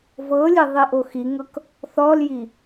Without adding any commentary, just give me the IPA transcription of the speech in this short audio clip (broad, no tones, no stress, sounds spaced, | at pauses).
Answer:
v ɤ lʲ e ðˤ i ʔ o x i ŋ ɤ k | θ ɔ l j i